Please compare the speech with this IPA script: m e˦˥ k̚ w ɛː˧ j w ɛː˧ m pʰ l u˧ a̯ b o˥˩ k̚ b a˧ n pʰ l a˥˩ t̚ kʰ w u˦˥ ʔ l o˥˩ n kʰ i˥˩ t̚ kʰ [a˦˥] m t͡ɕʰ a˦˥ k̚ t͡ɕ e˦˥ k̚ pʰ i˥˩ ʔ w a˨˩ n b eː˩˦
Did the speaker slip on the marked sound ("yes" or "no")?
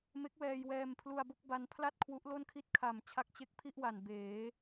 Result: yes